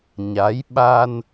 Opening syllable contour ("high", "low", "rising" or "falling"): rising